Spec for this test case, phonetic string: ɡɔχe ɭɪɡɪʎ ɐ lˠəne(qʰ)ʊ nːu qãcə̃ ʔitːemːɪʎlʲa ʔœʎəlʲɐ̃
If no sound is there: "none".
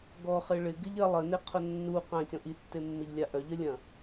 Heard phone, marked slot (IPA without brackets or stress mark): qʰ